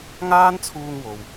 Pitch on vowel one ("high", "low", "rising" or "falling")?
high